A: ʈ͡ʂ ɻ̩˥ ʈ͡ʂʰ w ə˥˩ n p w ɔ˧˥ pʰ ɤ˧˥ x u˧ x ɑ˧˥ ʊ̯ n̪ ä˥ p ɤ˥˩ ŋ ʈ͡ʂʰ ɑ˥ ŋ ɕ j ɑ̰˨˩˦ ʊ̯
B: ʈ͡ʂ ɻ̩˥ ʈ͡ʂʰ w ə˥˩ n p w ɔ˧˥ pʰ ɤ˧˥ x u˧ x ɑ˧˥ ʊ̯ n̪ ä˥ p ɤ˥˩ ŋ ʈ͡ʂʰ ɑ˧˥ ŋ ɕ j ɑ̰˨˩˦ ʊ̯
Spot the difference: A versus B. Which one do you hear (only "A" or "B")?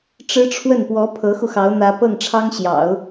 A